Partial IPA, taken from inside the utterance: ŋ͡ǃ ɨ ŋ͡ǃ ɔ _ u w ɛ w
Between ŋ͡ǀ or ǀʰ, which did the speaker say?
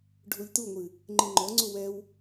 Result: ŋ͡ǀ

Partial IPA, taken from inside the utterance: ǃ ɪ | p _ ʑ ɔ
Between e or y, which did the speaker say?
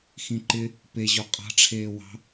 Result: e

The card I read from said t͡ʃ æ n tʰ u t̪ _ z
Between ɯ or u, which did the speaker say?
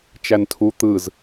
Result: ɯ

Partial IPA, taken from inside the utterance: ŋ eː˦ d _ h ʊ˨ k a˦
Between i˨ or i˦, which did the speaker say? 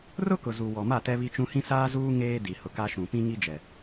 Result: i˨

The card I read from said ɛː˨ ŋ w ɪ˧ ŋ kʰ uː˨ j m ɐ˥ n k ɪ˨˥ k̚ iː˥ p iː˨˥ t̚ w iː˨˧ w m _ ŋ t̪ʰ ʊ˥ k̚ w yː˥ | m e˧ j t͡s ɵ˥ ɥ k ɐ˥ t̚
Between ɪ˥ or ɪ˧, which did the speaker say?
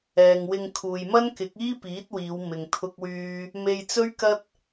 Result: ɪ˧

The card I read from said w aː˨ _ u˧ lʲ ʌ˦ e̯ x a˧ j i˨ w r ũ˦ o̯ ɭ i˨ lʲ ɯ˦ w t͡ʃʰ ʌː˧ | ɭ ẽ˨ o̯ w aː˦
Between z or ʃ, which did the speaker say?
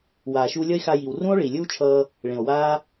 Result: ʃ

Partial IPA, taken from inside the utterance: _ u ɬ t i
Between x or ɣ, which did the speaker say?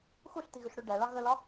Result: x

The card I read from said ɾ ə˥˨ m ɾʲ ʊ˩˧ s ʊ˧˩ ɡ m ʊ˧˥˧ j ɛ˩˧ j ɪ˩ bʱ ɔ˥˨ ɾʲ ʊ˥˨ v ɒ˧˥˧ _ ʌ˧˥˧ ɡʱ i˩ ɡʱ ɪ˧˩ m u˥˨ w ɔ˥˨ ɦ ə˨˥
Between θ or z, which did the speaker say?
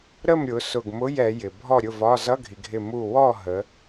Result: z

